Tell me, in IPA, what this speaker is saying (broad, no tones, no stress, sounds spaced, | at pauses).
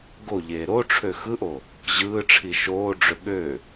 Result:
ɡ o ʎ eː ɾ o ʈ͡ʂʰ ø x ɯ ʔ o | ʑ ɯː ʈ͡ʂʰ i ʃ oː ɖ͡ʐ ø ɠ ø